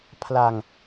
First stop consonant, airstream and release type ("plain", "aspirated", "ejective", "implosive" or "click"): aspirated